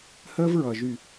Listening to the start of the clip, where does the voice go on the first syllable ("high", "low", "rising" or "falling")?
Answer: high